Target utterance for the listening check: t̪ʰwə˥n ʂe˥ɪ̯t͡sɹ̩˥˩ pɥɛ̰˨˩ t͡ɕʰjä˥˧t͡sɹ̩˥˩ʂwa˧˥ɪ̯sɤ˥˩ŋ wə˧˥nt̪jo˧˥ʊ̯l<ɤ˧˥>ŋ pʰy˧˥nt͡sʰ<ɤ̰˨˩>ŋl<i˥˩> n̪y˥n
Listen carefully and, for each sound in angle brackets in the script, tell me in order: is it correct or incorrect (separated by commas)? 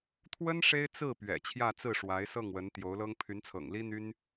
incorrect, correct, incorrect